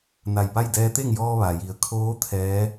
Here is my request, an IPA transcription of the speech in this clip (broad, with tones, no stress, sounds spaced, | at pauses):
n a˧˩ j p a˥˨ j d ɛː˧ t̪ e˥˨ ŋ j ɔː˧ ʋ a˩ j i˩˧ ə̯ kʰ oː˧˥ t̪ʰ ɛː˧˥